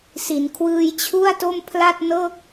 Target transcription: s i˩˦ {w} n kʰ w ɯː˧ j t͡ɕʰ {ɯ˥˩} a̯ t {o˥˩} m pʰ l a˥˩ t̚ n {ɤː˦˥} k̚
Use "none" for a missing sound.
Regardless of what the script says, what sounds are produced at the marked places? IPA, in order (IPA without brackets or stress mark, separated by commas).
none, u˥˩, o˥˩, ɤː˥˩